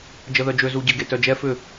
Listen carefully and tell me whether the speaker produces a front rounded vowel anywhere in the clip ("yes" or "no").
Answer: yes